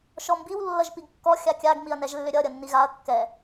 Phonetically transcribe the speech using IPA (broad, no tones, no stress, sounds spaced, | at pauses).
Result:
ʃ ɔ m b i w lː ʌ ʒ p i ɡ kː ɔ xʲ a kʲ a ɡ m i ɐ̯ n ɛ ʒ lː ʏ ɾʲ ʌ ɾʲ ʌ nː i ɣ a ɐ̯ kː ɛ